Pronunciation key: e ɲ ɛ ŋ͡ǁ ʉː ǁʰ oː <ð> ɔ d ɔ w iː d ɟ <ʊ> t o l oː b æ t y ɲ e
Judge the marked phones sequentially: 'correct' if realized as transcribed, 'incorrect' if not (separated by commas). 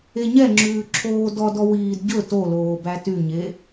incorrect, incorrect